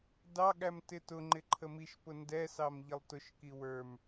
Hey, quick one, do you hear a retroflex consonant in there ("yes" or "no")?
no